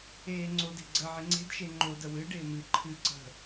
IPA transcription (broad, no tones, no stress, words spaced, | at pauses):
eːŋ͡ǀode̤ ɡ͡ǀə ʕɪŋ͡ǀe̤dʃe ŋ͡ǃodə wɨɖɪː mɨ ǃʰɨ ǀə̤